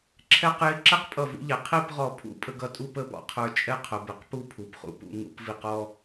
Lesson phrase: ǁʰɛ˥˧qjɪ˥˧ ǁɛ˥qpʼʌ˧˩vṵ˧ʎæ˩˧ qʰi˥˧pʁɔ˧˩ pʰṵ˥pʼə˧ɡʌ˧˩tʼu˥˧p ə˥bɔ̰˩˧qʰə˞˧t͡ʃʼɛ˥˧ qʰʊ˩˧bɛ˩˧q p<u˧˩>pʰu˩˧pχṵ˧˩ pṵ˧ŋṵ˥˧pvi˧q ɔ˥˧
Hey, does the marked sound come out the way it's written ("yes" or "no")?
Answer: no